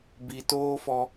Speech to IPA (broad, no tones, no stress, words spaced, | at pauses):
bitoːfɔ